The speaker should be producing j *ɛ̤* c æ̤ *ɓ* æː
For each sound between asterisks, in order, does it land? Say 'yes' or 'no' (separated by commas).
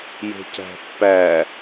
no, no